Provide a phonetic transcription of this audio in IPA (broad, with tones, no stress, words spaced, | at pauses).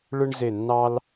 ɭɯ˦ɳze˧˩nːɑ˦l